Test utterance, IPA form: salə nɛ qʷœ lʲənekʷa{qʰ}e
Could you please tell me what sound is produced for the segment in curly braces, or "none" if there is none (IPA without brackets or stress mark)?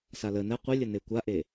ʔ